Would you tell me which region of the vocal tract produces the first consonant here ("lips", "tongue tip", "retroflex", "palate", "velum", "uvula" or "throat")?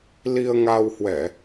tongue tip